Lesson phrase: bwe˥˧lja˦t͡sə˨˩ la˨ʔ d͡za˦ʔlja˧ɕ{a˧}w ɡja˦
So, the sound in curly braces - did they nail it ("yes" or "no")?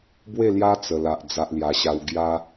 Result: no